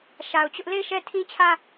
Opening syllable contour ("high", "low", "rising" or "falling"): low